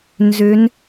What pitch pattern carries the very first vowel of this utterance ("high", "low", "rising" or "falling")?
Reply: rising